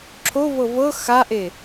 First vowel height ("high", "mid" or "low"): mid